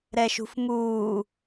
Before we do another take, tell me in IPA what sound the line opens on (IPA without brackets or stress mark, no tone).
ɾ